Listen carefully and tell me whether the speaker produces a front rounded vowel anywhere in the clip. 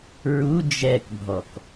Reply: no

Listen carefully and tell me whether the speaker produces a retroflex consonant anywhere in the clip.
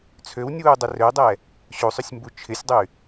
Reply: no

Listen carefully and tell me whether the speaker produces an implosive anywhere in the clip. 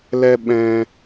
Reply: yes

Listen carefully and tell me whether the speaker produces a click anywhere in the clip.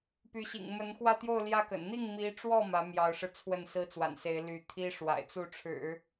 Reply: no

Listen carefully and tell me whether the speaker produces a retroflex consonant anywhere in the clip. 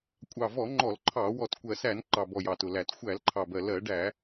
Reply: yes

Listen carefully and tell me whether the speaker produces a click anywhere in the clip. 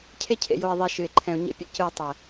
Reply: yes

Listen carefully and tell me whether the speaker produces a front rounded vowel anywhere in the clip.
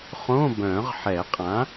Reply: yes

